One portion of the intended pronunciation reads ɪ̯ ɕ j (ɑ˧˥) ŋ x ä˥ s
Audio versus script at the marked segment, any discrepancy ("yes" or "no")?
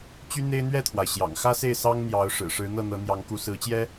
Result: yes